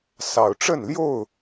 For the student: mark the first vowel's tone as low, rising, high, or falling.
low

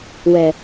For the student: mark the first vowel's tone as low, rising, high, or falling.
low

